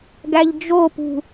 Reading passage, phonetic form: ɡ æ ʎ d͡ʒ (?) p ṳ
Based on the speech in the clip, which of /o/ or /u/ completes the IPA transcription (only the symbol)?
o